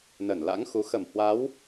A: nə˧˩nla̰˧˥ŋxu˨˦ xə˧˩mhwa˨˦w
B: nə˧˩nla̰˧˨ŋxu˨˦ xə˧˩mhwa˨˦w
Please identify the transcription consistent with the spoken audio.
A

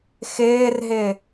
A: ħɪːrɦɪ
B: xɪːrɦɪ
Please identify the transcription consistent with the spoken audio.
B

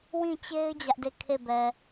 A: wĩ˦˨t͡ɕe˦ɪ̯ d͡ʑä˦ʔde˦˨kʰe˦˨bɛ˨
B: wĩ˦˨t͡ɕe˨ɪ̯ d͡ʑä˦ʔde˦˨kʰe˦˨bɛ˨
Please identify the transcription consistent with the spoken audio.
A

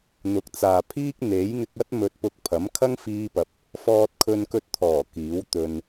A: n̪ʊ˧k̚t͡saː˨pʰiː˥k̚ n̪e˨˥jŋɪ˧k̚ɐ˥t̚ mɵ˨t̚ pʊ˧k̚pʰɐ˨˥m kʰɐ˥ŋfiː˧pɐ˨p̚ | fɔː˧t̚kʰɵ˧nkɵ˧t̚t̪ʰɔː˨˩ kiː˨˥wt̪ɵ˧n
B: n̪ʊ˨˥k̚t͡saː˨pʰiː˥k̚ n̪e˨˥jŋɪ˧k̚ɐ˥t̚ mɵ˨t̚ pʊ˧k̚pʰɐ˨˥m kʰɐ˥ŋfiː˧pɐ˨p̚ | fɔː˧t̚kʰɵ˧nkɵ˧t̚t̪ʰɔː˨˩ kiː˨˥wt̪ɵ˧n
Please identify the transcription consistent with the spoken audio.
B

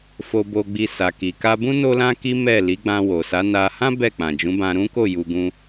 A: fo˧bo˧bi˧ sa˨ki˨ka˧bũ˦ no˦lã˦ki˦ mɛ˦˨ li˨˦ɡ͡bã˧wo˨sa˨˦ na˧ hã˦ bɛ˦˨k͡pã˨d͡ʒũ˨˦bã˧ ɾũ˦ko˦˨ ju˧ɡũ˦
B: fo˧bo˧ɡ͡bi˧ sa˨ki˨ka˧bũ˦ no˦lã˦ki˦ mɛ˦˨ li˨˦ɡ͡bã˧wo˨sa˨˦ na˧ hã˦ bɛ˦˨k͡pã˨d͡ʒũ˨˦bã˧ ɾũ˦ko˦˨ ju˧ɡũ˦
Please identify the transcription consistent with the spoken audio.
B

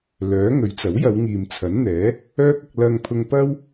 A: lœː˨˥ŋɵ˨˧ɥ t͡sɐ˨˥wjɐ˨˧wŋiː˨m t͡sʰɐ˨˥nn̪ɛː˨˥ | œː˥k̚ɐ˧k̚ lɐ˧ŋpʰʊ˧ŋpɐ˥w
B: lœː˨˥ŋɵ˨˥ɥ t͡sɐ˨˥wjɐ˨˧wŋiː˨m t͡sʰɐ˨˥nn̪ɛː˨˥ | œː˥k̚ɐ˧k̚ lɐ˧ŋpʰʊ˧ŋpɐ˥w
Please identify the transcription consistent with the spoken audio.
B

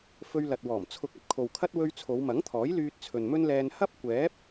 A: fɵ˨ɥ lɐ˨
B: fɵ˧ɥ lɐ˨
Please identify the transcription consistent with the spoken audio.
B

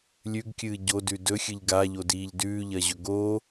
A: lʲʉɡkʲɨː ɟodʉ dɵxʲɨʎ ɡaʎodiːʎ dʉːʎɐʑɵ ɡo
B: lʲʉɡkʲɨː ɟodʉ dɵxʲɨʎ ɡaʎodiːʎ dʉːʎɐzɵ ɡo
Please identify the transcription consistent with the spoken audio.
A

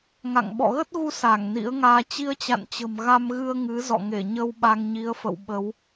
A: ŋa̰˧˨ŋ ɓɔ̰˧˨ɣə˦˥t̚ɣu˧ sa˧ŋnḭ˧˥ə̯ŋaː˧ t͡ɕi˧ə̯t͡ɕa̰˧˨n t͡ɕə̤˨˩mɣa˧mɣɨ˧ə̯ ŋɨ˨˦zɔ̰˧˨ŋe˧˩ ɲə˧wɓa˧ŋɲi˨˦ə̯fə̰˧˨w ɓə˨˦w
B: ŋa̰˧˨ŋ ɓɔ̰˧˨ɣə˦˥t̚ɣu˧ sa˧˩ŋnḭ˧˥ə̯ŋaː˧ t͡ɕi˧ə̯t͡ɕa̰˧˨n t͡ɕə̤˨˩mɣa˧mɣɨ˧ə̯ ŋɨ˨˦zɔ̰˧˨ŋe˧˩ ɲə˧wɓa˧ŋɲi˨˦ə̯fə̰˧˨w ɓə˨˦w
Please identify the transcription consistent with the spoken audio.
B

